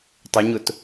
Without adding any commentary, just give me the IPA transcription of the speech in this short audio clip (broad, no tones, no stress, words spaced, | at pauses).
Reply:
tˤɪɲʊt